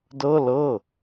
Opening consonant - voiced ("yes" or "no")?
yes